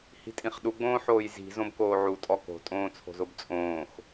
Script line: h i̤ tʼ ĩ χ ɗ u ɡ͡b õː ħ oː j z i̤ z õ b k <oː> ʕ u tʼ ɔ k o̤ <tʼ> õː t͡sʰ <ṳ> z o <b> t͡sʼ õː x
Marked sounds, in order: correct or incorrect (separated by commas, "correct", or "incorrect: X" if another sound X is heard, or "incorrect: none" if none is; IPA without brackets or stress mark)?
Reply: correct, correct, incorrect: o̤, correct